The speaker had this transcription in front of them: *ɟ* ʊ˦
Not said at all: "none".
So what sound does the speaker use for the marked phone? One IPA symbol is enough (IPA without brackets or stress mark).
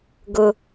ɡ